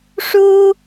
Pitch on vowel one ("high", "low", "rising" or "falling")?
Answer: high